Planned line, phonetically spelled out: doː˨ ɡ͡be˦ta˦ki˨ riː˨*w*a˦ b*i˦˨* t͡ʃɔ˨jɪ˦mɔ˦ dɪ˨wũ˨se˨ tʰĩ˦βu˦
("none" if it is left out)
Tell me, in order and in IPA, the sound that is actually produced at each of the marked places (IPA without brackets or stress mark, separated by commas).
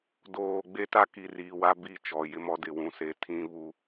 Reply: w, i˦˨